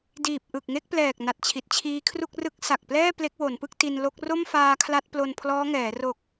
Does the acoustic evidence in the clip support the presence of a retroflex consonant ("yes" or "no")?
no